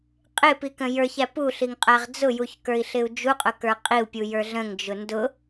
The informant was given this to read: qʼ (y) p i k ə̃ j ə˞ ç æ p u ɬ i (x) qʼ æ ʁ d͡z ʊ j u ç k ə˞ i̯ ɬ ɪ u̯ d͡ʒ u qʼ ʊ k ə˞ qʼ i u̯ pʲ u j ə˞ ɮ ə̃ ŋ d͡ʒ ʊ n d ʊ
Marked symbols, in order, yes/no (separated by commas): no, no